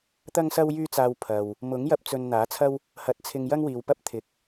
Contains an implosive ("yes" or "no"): no